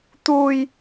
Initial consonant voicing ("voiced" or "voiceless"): voiceless